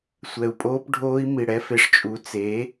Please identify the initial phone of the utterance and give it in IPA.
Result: sʷ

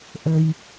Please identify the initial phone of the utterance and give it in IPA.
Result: ʔ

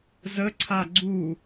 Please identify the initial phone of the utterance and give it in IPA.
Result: z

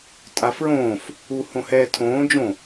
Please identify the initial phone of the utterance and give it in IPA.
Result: tʼ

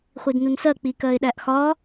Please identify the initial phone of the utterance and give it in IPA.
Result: χʷ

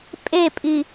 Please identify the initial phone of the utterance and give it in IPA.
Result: pʼ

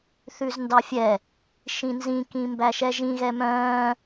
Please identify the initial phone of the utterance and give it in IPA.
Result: θ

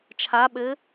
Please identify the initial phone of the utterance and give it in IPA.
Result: t͡ʃʰ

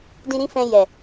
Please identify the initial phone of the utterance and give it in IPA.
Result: d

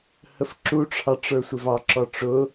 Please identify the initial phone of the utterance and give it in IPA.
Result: h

